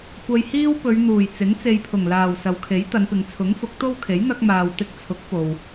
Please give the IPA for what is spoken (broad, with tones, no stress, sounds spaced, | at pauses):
kʷ ɐ˨ j h iː˧ w p ɵ˨˧ ɥ n̪ uː˨˩ j t͡s ɪ˨˥ ŋ t͡s e˨ j pʰ ʊ˨˩ ŋ l aː˨˩ w s ɐ˨˧ w kʰ e˨˥ j t̪ ɐ˨˧ n p ɪ˨ ŋ t͡sʰ ʊ˨˥ ŋ f ʊ˨˥ k̚ t̪ o˥ w kʰ e˨˥ j n̪ ɐ˧ k̚ m aː˨ w t̪ ɪ˧ k̚ t͡sʰ ʊ˨˥ k̚ p o˨ w